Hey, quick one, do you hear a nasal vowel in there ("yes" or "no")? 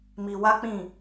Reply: yes